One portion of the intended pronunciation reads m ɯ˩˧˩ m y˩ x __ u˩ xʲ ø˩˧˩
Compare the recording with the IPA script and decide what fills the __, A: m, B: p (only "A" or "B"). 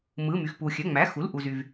B